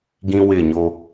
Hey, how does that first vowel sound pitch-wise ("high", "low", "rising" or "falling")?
high